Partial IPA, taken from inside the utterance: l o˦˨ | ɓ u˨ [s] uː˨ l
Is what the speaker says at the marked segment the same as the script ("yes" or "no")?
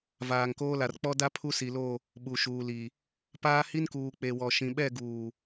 no